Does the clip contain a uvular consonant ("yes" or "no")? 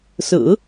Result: no